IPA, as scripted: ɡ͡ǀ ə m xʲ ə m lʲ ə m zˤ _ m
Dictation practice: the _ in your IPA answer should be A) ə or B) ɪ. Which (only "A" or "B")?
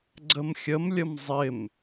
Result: B